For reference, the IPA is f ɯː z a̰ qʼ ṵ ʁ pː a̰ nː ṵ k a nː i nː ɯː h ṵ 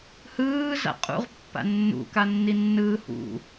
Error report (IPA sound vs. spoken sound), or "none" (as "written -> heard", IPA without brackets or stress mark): f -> h